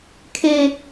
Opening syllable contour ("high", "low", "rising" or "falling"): high